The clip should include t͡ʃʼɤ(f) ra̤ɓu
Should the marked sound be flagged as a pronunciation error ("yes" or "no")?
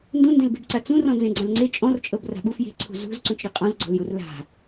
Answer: yes